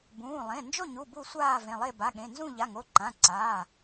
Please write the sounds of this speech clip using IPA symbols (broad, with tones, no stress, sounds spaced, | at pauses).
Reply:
b ũː˩˧˩ lˠ ẽ˩˧˩ n d͡ʒ o˥˨ ɲ u˩˧˩ b u˥˨ sʷ aː˥˨ v ẽ˩˧˩ lˠ e˥˨ b a˩˧˩ ɠ ẽ˩˧˩ n z ũ˥˨ ʎ a˩˧˩ ŋ o˩˧˩ ǃ ã˩˧˩ ǀ aː˩˧˩